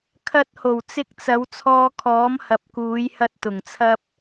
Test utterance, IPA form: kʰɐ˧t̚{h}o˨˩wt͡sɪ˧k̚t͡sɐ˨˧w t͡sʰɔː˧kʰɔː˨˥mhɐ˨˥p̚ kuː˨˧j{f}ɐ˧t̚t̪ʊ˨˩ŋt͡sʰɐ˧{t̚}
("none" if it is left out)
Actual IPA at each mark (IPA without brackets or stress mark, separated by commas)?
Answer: h, h, p̚